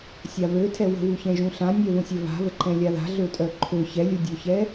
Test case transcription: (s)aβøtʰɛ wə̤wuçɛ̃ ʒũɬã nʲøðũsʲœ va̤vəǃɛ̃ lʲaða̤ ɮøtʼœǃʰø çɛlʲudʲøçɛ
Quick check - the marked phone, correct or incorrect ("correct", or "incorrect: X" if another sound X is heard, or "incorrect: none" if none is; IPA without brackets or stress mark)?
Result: incorrect: sʲ